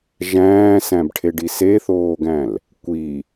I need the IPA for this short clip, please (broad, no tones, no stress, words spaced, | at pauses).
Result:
ʒæ̃ːsæ̃bʈʰeɖi seθoːɡæ̃l | kʷi